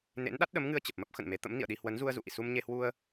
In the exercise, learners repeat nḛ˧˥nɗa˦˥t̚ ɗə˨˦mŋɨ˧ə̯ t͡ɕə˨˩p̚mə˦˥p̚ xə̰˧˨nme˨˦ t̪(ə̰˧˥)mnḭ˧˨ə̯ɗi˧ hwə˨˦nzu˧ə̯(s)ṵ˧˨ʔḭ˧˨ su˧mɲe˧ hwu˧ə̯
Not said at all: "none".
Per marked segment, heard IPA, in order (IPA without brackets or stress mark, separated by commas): ə̰˧˥, z